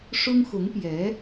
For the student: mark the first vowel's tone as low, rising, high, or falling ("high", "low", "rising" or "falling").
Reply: high